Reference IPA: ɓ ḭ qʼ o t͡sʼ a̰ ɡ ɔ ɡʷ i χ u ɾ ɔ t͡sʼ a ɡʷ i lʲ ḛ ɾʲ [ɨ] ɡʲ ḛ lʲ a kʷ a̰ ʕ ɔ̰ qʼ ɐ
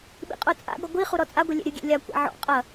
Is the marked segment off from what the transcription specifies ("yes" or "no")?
no